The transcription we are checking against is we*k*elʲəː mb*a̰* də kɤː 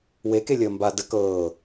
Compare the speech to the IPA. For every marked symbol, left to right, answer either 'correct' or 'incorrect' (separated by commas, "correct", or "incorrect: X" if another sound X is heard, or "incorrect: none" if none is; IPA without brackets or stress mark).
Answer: correct, incorrect: a